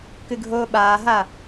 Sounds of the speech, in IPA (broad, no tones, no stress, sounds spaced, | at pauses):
k ɨ ɡʱ oː ɓ aː ɦ a